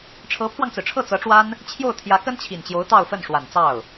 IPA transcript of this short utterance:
ʈ͡ʂʰ ɤ˧˥ pʰ w ɑ˧ ŋ t͡s ɹ̩˩ ʈ͡ʂʰ ɤ˥˩ t͡s ɤ˧˥ ʈ͡ʂ w a˥ n | t͡ɕʰ j o˥˩ ʊ̯ t̪ʰ j ä˧˥ k ə˥ n t͡ɕʰ i˨˩ n t͡ɕ j o˧˥ ʊ̯ t̪ ɑ˥˧ ʊ̯ f ə˥˩ n ʂ w a˨˩ n t͡s ɑ˥˩ ʊ̯

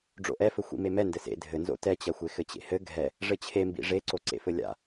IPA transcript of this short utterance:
ɖ͡ʐ o̰ ʔ ɛ f ɘ xʷ ḭ m e m ɛ n d ɘ s ḛ dʱ ɘ n z o̰ t ɛ t͡ɕ ɐ xʷ e x ɘ t͡ɕ ḛ h ɘ ɡʱ ɛ | ʐ ɘ t͡ɕʰ e m b ḭ ʐ e ǀ o ǀ ḛ f ɘ lʲ a̰

